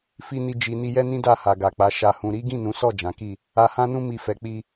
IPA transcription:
f i˧ n i˧ d͡ʒ i˨ n i˧ j ɛ˦ n ĩ˦ d a˦˨ h a˨ ɡ a˨ k͡p a˨˦ ʃ a˧ h ũ˧ ɾ i˦ ɡ ĩ˦˨ n ũ˨˦ s ɔ˦˨ d͡ʒ ã˨˦ k i˦˨ | a˧ h ã˦ n ũ˦ m i˧ f ɛ˨ k͡p i˧

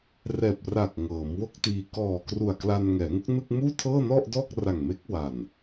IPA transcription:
r ɛː˨˩ p̚ r a˨˩ k̚ ŋ ɤː˩˦ m w o˥˩ k̚ t iː˧ k ɔː˨˩ k r u˨˩ a̯ k l a˧ n ŋ ɛː˩˦ ŋ u˦˥ k̚ n ɯ˥˩ k̚ m uː˥˩ tʰ ɤː˥˩ n ɔ˥˩ ʔ d ɔː˥˩ k̚ r a˨˩ ŋ m e˦˥ k̚ w a˨˩ n

